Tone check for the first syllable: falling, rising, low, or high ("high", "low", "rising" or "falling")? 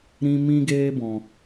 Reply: high